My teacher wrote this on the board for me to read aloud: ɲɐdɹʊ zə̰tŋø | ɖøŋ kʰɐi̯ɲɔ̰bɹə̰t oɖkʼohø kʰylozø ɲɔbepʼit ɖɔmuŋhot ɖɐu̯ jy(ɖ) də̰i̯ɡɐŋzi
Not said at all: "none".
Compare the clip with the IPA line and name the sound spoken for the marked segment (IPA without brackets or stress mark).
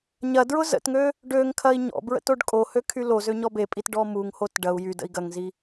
none